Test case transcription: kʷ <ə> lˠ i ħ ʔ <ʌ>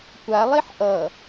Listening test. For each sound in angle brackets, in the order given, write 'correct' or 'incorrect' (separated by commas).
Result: incorrect, correct